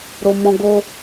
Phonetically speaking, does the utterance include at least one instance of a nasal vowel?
yes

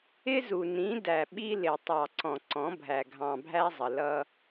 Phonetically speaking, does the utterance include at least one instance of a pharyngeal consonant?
no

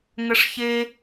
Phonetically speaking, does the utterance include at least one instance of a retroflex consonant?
yes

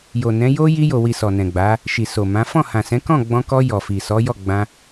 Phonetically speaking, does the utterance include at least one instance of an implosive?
no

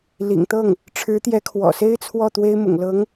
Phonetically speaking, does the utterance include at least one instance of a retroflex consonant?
yes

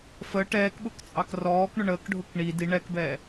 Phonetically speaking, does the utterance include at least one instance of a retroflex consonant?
yes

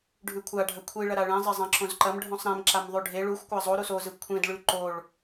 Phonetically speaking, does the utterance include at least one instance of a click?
yes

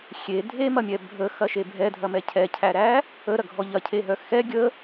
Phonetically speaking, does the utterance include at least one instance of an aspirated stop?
yes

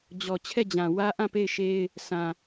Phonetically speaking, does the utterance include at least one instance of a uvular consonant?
no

